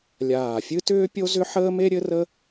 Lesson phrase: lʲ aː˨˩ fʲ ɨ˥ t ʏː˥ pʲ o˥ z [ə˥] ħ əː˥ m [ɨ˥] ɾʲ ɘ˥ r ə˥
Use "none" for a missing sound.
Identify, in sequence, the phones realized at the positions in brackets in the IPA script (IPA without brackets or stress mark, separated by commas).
ʏ˥, e˥